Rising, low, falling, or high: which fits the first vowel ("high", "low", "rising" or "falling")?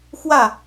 falling